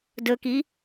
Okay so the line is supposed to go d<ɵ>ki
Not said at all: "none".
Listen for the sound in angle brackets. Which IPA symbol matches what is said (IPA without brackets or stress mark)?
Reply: ɵ